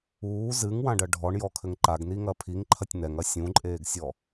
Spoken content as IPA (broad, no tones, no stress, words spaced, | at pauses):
uː zɨŋwãɖɐ ɖʱɔɳjɔkʰɘŋ ǃaɡniŋɐ pʰiŋǃʰɐtʲ nɛŋɐ sʲũǃʼeːɡsʲɔ